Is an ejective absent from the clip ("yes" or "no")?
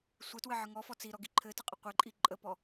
no